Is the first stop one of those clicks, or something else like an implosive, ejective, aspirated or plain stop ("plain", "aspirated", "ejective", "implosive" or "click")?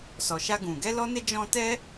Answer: plain